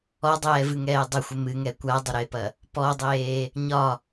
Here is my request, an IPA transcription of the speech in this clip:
ɔ dˤ ɛː v ɨ ŋ ɛː dˤ ɪ xʷ ɪ m ɨ ŋ ɛ kʷ a dˤ ɪ ɾ e p ɐ | p ɔ dˤ eː | ɲ ɒ

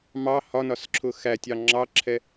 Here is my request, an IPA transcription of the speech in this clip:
m ɑ h ɒ n ɒ s ǁʰ ʊ x æ tʲ ɑ ŋ͡ǁ ɑ ǁʰ ɛ

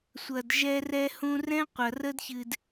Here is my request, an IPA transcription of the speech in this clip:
sʷ ɐ˨ d ʒ ɛ˧ r ɛ˧ h ũ˧ r ɛ̃˦ qʷ ɐ˨ r ə˦ d ç ɨ˨ d

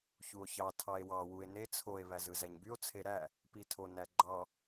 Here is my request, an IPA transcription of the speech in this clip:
ç u o̯ ç ɑ tʰ ɑ e̯ w ɑ w u e̯ n e t͡sʰ o e̯ β æ z ɯ z æ ɲ b y o̯ t͡sʰ e ɾ æ | p i tʰ o n æ ɡ͡ǃ ɑ

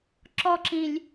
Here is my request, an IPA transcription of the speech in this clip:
ǁ ɔ ǁ ĩ lʲ

